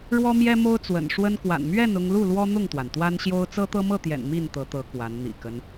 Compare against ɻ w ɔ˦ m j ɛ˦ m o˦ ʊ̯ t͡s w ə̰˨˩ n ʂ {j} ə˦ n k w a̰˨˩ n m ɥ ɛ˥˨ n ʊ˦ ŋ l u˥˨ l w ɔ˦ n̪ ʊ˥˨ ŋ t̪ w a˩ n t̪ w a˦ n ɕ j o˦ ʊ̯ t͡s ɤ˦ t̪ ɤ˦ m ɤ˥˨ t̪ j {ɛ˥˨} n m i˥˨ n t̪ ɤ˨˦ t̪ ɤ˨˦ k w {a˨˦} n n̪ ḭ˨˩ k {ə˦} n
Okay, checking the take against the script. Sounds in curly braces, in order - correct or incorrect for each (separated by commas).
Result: incorrect, incorrect, correct, correct